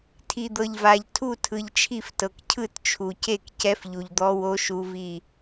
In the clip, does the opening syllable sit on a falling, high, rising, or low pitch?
low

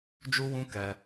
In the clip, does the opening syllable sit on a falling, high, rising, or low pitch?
high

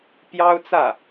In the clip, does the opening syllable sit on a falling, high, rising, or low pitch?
high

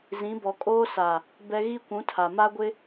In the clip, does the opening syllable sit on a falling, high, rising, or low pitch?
rising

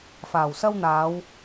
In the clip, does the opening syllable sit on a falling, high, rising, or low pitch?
low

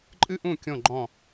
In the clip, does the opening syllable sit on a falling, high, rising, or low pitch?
high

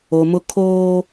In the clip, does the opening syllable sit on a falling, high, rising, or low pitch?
low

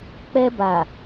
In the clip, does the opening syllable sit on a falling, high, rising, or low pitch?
high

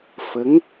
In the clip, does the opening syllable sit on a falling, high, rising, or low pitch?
rising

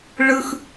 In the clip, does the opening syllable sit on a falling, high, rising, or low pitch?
high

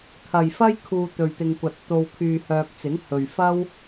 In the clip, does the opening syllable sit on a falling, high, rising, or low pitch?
low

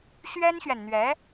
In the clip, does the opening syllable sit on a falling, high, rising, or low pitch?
high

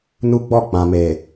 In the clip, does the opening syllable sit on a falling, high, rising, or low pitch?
high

